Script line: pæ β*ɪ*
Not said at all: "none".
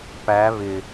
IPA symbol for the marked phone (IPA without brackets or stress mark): ɪ